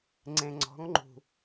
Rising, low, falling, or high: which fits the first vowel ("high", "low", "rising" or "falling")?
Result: low